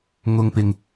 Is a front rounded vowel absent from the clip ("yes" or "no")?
yes